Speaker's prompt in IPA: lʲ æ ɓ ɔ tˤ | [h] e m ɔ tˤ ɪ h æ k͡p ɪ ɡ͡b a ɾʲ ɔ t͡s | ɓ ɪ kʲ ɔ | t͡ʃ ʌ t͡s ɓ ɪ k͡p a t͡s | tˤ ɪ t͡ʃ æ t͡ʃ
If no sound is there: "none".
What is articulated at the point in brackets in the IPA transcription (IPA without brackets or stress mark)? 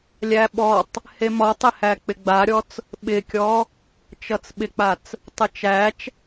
h